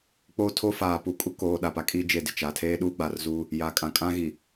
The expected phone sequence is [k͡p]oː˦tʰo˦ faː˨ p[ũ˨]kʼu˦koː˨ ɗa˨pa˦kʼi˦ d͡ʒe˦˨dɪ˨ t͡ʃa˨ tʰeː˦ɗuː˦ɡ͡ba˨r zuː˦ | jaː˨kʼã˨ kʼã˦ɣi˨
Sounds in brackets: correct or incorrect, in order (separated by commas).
correct, incorrect